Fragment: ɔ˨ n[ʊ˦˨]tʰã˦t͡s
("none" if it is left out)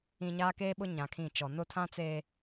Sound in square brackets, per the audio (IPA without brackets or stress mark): ʊ˦˨